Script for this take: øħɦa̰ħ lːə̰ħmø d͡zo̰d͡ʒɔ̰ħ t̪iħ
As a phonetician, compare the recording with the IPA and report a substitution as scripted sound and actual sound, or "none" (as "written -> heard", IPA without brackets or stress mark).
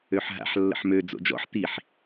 none